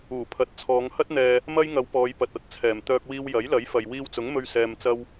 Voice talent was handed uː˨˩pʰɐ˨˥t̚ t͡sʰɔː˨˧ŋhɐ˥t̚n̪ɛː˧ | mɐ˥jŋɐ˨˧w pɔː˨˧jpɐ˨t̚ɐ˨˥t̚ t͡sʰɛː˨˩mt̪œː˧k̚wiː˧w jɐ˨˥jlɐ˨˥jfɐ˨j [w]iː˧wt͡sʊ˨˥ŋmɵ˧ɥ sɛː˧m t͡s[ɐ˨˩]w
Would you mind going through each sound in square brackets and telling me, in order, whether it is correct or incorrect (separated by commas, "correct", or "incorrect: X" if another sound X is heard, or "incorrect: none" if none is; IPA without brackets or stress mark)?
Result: correct, incorrect: ɐ˥